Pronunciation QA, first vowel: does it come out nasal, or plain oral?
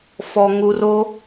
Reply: oral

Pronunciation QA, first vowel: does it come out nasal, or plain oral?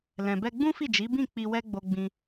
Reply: nasal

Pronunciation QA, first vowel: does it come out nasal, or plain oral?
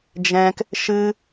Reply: nasal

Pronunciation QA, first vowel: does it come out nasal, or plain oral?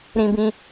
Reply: nasal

